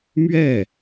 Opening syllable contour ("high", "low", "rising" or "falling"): falling